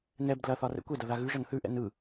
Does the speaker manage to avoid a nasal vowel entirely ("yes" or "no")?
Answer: yes